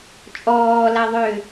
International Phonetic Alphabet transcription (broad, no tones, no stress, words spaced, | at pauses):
t͡ʃʼɔːlaðˤøː